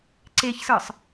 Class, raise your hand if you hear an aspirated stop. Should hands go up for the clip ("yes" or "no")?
no